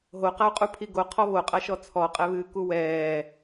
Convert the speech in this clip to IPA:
ɦoqau̯qʼu pʰiɡo qʰɔβoqʼaʃɔ t͡sʰɔqʼɛβɨː kuwɛː

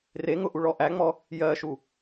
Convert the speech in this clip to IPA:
reŋʊ ʔuɭɔʔæŋ͡mɔ | jɜʃu

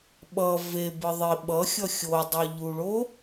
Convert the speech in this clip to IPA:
ɓʌ vebɯ ðˤi ɓʌxʲʌ xʲodˤoʎuɭo

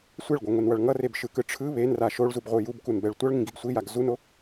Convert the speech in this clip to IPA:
sʷɛɭɡʷaŋʷenwʌɭ ŋʌrebʃɯkɯ ʈ͡ʂʰɯ βenra ʃoɭzubʁʷɯ jubkunbɛɭ tʷʌɭŋĩɡiɡ sʷijaɡ zuno

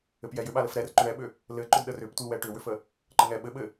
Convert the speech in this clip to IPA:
ɘpjɛjʏ ɓaləfɾɛr ǃʏɳɛɓʏ | lɘǃʏd ɗərʏptʷi wɛʈʏwʏfə | ǃəŋɛ ɓɘɓɘ

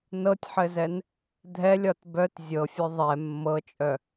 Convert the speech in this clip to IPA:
nɤtʲħɘzɛn | dʱɛlʲɒt bœt zʲɤfʲœ ðˤɛ mːɤt͡ʃʼœ

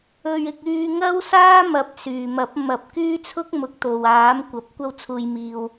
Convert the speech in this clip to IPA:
ɵ˧ɥɪ˧k̚ yː˧ŋɐ˥wsaː˥mɐ˨˥p̚ syː˨mɐ˨˥p̚ mɐ˨p̚ kyː˥t͡sʰʊ˥k̚mʊ˨˥k̚ t̪o˨w aː˨˥mkʷɐ˨p̚ kʷɐ˧wt͡sʰuː˨jmiː˨w

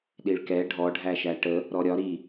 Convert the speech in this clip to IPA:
ɗiɭkɛ ɖʱɔɖʱæʃæ ʈə | ɾɔɾʲɒ ɾi

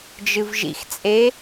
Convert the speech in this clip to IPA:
d͡ʒɨvʒḭxt͡sʼe

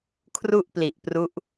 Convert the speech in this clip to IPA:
kʰru˥˩ʔpli˨˩ʔ pru˦˥ʔ

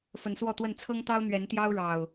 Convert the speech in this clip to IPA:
fə˨˦nswɔ˥˨t̪wə˥˨n t͡sʰɤ˦ŋt̪ɑ˦ʊ̯ n̪ɥɛ˨˦nt̪jɑ˦ʊ̯ɻɑ˨˩ʊ̯

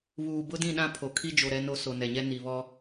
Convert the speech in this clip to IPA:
βuː˨bʊ˦dĩ˦˨ɗã˦ pʰo˨kʰi˦ d͡ʒo˨ɾɛ˦no˦ so˨nɛ˨ɲɛ˦ ni˨βɔ˦

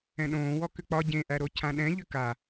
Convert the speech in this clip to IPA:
ɛ̃ɗõː wɔkʏk͡pɒ ɟẽʔæɾo cʰãɗɛ̃ʎʏ ka

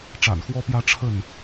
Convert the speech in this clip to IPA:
ʈ͡ʂa̰˨˩nxwɔ˦pjä˦ ʈ͡ʂʰə˥˨n

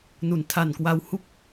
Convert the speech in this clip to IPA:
nu˩˦ntʰa˨˩nkwa˧w hu˥˩k̚

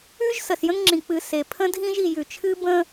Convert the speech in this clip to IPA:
ʉ˦ʒ sə˨sjə̃˦ŋŋ͡ǁĩ˨ k͡pɨ˨ se˨ pʰə̃˦dʱĩ˦ʒ i˨jʉ˨t͡ʃʰɨ˦ bə̃˦

